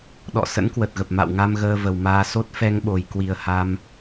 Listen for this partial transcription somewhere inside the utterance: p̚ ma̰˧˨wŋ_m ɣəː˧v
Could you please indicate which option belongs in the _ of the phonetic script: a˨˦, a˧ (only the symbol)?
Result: a˧